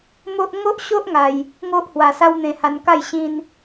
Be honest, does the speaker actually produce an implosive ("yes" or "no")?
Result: no